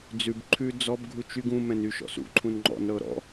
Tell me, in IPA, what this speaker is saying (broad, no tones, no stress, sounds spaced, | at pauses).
d͡z ʉ b ǃʰ ʉ d͡z ɔ b ɡʱ u t͡ʃ y ɡ ũ m ɛ̃ n y ʃ ɔ̰ s ṵ ǃʰ ũ n ŋ͡ǃ ɔ̰ n ɾ ɤ ɾ ɔ̰